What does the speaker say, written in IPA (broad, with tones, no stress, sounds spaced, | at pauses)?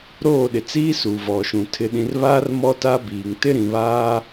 ɾ oː˦˨ ɗ ɪ˨ t͡s iː˦ s uː˨ v ɔ˨ ʃ ũ˨ tʰ ɪ˨ ɗ ĩ˨ r β a˦ r m ɔ˦ t a˦ b iː˨ ŋ t ɪ˦ ɾ ĩ˨ β aː˦